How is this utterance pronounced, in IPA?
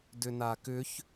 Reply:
d ʏ n a k ʏ ç

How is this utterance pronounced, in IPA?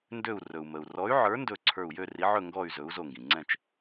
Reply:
n d ø˧˩ u̯ r ɵ˩ u̯ m ə˩ u̯ r ɔ˨˥ y̯ ʕ ə˞˨˥ n d ɵ˧˩ ǀʰ ə˞˧˩ u̯ j ø˥˨ r i˨˥ ʕ ɵ˥˨ ŋ ɡ ɔ˥˨ y̯ z ɵ˨˥ u̯ z o˧˩ ŋ ɡ ĩ˩ ŋ͡ǀ ɛ̃˥˨ t͡ʃ

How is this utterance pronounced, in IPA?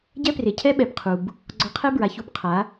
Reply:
ɟ ɛ˦ p r e˨ cʰ ɛ˦ ɓ ɛ˨ b qʰ u˨ b | ɡ͡ǀ ɔ˧ qʰ ɛ˦ b ɹ a˨ ç u˧ b qʰ a˨˦

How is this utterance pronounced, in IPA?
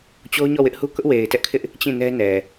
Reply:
t͡ɕ o˦ ʊ̯ ɲ ɔ˦˨ w ɪ˦ ʔ h u˦ k ʊ˦ ʔ w e˨ ɪ̯ t ɛ˦ ʔ kʰ ɪ˦ ʔ | t͡ɕ ĩ˦˨ n ɛ˦ n ɛ˨

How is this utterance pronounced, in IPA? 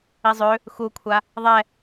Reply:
i zˤ ø | x u kʷʰ a | ðˤ ɛ

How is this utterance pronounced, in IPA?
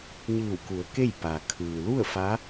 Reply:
ɲ ɯː˧˩ w k u˩˧ ə̯ k e˥˨ j p a˩ kʰ ɯː˩ l u˥˨ ə̯ f a˧˥

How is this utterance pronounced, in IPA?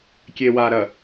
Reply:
kʲ e˨ w a˨ ɾ ɐ˨

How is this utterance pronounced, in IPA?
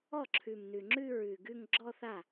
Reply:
ɔ˥˩ ǁʰ ʉ˨˩ m n ʉ˨˩ ŋ͡ǁ ʉ˥˧ ɹ ʉ˨˩ ɡ ʉ˥˧ ŋ ɡ͡ǁ ɔ˥˧ θ a˥˩

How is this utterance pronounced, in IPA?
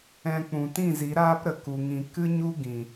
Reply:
ɛ̃˧ k͡p ũ˨ t ĩ˦˨ z i˨˦ ɾ aː˦ p ɾ ə˨ k u˨ ŋ ĩ˨ k ɨ˦ ɲ u˦ ɡ ĩ˨

